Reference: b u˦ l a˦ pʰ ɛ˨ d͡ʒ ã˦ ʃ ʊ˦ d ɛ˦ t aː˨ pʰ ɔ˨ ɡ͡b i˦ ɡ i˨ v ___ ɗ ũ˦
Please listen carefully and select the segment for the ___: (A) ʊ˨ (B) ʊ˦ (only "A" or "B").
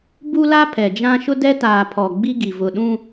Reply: A